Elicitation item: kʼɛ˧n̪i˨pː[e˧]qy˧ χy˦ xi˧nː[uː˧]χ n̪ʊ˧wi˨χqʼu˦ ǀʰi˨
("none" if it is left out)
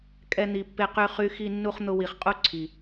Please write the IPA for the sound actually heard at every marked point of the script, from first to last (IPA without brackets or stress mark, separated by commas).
e˧, u˧